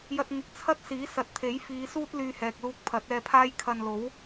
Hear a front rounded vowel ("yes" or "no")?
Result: yes